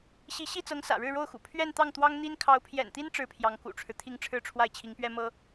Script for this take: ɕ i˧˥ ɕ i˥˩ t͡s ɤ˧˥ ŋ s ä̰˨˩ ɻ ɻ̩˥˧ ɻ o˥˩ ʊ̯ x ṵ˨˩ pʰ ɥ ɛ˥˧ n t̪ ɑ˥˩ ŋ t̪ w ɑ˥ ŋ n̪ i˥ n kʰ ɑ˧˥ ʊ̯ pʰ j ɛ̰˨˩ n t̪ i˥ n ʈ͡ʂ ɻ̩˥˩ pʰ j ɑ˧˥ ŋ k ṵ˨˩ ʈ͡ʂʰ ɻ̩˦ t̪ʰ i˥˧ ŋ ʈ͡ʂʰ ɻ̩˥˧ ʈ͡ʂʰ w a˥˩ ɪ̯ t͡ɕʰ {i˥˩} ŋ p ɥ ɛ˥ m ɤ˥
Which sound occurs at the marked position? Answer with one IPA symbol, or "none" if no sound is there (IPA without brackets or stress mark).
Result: i˧˥